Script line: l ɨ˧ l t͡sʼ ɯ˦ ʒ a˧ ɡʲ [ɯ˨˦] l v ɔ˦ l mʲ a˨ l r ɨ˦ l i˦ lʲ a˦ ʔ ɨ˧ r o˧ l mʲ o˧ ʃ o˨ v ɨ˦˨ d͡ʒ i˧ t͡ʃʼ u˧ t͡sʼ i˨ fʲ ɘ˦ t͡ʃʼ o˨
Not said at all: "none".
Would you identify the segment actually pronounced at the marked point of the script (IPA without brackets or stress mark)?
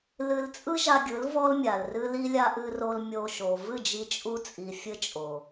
ɯ˨˦